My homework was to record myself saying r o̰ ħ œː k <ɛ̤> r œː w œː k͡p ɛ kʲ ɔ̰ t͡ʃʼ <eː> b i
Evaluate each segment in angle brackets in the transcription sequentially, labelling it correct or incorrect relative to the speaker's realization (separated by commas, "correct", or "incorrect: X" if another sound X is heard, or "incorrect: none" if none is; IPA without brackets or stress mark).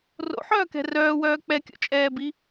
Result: correct, incorrect: ɛː